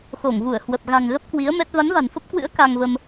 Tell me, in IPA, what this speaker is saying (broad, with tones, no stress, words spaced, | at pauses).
xo˧˩ŋvu˧˩ə̯hwə˨˩p̚ ɣa̤˨˩ŋ ɣə˦˥p̚kwi˨˦ə̯ mɛ˦˥t̚ va˨˦nva̤˨˩nfə˦˥p̚kwɨ̰˧˥ə̯ ka˧ŋvə˧m